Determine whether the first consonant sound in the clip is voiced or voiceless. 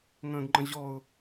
voiced